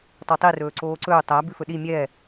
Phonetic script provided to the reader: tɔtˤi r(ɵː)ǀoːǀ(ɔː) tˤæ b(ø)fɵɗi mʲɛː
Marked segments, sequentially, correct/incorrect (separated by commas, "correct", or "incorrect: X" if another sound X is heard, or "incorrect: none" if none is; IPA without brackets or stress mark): correct, incorrect: ɵː, incorrect: ʉ